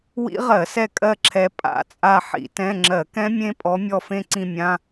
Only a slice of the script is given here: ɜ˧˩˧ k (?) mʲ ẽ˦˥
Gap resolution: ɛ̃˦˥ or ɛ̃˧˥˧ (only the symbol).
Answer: ɛ̃˦˥